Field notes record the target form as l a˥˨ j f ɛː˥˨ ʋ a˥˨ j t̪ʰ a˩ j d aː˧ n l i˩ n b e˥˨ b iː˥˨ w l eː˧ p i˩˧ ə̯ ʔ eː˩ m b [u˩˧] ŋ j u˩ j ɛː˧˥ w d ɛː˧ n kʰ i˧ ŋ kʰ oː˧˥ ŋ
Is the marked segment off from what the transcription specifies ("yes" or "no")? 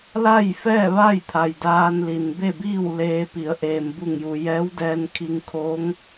yes